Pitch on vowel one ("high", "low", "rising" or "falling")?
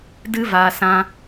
high